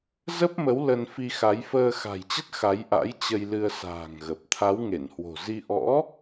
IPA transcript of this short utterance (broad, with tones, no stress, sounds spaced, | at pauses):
z ə˦˥ p̚ m ə˨˦ w l ə˧ n f i˧ x a˨˦ j f əː˧ x a̤˨˩ j t͡ɕ ə˦˥ t̚ x a˨˦ j ʔ a̰˧˥ j t͡ɕ ə˧ j l ɨ˧ ə̯ s a̤ː˨˩ ŋ ɣ ə˨˩ p̚ t̪ʰ a˨˦ w ŋ e˧˩ n h w o̤˨˩ z i˧ ʔ ɔ̰˧˥